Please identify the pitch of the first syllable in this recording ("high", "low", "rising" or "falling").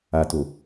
low